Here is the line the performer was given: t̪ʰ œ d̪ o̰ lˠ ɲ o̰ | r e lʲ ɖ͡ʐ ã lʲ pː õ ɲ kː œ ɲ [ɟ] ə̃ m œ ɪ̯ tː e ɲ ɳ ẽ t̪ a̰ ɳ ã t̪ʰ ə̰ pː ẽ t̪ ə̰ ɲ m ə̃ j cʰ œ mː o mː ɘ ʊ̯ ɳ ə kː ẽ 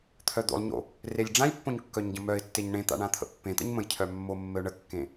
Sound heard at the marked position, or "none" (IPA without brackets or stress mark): ɟ